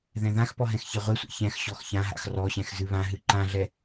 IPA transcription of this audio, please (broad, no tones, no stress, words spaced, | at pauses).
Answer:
ðɛ̃ðãxpɔ ɦɛ̃xçɛʁʷesʷɛ̰ çɛ̃xɕɔx çãɦa̰x rɔɕɛ̃x zɨβãɦɨ ǃãɮɛ